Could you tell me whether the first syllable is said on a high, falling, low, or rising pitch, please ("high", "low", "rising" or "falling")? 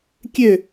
falling